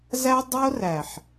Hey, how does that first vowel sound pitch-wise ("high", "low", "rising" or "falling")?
high